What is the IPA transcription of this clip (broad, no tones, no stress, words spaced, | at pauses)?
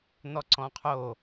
n̪ɔǀɔ̃qʰo